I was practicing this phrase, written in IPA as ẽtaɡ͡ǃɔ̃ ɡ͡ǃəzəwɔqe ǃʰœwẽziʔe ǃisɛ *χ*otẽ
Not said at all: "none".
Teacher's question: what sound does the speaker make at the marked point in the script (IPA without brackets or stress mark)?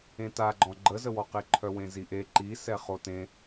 χ